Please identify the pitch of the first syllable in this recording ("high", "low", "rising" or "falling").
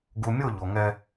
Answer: low